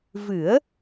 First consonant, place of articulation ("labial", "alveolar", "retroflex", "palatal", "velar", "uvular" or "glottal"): labial